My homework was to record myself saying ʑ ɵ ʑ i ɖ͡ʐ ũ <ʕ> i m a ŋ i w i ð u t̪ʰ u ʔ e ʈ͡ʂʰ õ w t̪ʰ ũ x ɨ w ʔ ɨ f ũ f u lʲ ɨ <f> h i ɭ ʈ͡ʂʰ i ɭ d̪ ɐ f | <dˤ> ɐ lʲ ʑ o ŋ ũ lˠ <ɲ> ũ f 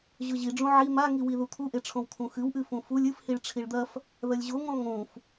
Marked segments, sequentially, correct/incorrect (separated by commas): correct, correct, incorrect, incorrect